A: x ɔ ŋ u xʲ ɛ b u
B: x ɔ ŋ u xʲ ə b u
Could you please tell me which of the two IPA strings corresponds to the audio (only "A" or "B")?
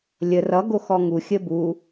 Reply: B